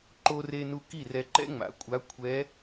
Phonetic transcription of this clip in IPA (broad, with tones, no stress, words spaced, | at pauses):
ǃo˧re˧nu˧ ki˥˩rɛ˧ ǃɛ̰˥ŋ͡ma̰˩˥kʷʼa˧˥ kʷʰɛ˧˥